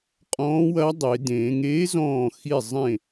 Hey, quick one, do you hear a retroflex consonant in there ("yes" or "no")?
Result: no